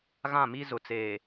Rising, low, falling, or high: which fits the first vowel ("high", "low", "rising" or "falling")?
falling